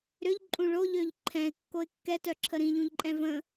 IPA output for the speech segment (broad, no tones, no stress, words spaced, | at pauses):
ɾʏʎǃʼũ ɭoʎøʎ ǃʰɛ̃ɪ̯kːoɪ̯ kːɛtœǁʰə ɾĩʎũʎǃʼɛ̃ və̃